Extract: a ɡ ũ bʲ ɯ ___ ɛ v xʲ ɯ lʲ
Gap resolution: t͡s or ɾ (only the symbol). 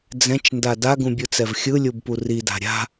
t͡s